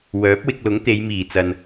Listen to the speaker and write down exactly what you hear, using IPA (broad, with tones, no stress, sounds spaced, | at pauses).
w œː˨˥ p̚ w ɪ˧ k̚ l ʊ˨˥ ŋ t̪ e˨˧ j m iː˨˩ t͡s ɐ˨ n